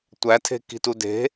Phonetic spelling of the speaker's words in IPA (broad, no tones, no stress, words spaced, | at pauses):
tʷætʰe̤ ki̤tude̤